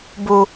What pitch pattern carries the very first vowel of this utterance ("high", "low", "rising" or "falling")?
low